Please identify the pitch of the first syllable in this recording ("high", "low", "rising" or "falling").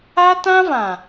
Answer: high